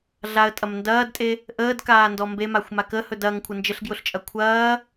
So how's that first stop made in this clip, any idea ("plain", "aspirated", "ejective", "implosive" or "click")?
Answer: ejective